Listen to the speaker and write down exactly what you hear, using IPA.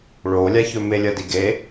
ɭolʲaçɵ melʲɐdiɡe

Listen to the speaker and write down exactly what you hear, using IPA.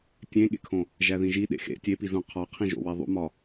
tʲẽɠḛkʰõ | ʒæðĩʒi ɗḛxḛ tʲepizũ qʰɒqʰĩʒo̰ weðˤṵmɒ

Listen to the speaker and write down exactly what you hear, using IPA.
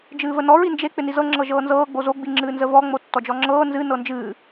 d͡ʒɨːvənɔ ɹind͡ʒe k͡pɪnizɤ ŋ͡ǁɤʒɤːnzɤː ɡ͡bozo ɡ͡biŋ͡ǁɨːnzəvɔ ŋ͡motːɔd͡ʒɔŋ͡ǁɤː nzɨ nɤnd͡ʒɨː

